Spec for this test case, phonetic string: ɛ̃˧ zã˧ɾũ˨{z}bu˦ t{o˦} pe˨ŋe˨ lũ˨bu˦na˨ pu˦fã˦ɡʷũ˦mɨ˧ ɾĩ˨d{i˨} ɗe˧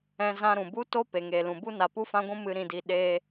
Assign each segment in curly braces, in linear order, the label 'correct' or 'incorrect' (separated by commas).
incorrect, correct, correct